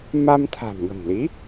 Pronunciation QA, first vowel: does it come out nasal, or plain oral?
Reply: oral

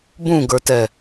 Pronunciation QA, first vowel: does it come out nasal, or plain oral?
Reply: nasal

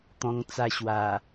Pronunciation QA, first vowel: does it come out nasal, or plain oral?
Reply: nasal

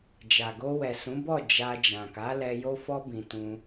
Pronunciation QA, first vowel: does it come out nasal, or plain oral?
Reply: oral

